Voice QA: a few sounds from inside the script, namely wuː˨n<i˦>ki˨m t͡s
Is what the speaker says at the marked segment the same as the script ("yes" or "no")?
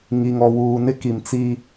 no